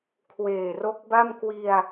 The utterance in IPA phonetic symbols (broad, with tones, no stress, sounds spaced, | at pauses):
kʰ w eː˨˩ r o˦˥ k̚ b a˥˩ m k w i˧ a̯